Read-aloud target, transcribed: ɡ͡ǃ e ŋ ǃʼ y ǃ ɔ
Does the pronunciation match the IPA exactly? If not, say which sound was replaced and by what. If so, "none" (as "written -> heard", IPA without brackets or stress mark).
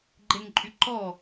none